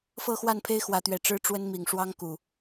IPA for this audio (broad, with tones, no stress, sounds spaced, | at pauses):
f ɤ˥˨ x w a˥˨ n pʰ e˦ ɪ̯ x w ä˨˦ t̪ ɥ ɛ˨˩ ʈ͡ʂ ɻ̩˦ ʈ͡ʂ w ə˦ n m i˨˩ ŋ ʂ w ɑ˦ ŋ k u˨˩